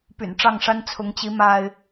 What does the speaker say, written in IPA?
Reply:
py̰˨˩nʈ͡ʂɑ˥˨ŋʂa˦n t͡sʰʊ˨˦ŋt͡ɕi˨˦ ma˦ɪ̯

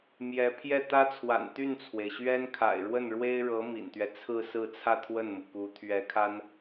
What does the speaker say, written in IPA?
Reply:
mjɛ˧˥ pʰjɛ˥˩t̪ä˥t͡sʰwa̰˨˩n t̪y˥˩nt͡sʰwe˩ɪ̯ɕɥɛ˥n kʰa̰˨˩ɪ̯ɻwə˥˩nɻwe˥ɪ̯ɻɤ˧˥ mḭ˨˩nt̪ɥɛ˦t͡sʰɹ̩˥˧ sɹ̩˥˧t͡sʰä˥˧ t̪ʰwə˥˩nmu˩ku˧˥ t̪ʰɥɛ˧˥kʰa˥n

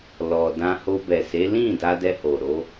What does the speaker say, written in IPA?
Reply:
lɔ˨dã˧ ho˧bɛ˨se˨˦ lĩ˦˨ da˧dɛ˧ho˨ ɾo˧

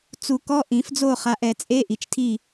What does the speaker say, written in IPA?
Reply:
t͡su˨˩˦ kɔ˧˥˧ʔĩ˨˩˦fd͡zo˥˨χa˨˦ʔ ɛ˨˩˦t͡sʼe˧˥˧ʔi˨t͡ʃtʰi˥˨

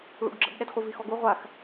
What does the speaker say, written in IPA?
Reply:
ɭṵɡɡ͡ǁə̰bɗɛd χʷivixɔɡu ʁʷax

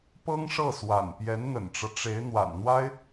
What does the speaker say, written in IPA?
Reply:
pɤ˥ŋʂɤ˥˩swa̰˨˩n pjɛ˧˥nn̪ə̰˨˩nʈ͡ʂɤ˦ ʈ͡ʂe˧˥ɪ̯ n̪wa̰˨˩nn̪wa˥ɪ̯

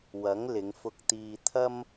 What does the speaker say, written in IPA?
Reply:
wɐ˨˥ŋ lɪ˨˧ŋfʊ˧k̚t̪iː˧ t̪ʰɐ˥m

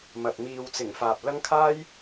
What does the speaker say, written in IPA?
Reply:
mɐ˨t̚ miː˨wt͡sɪ˨˩ŋ faː˨p̚lɐ˥ŋ kʰaː˥j

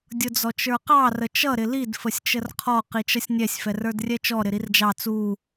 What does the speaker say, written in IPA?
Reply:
dʲʊd͡zɔt͡ʃə˞qɑ rət͡ʃʌ ɾɪlid fəsʲt͡ʃərqʰɔ qit͡ʃʌsʲnʲɛsʲ fɛrə˞drʲɛt͡ʃɔ ɾɪɾird͡ʒɑ t͡su

